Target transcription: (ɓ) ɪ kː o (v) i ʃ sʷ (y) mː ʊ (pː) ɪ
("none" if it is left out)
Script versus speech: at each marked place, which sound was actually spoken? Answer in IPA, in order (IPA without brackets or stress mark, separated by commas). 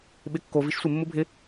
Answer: ɓ, v, ɪ, bʱ